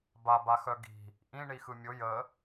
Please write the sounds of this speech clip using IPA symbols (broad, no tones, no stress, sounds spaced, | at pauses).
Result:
b a b a x œ ɡ i̤ | ʔ ĩ ɳ i x ɯ mʲ ʊ j ə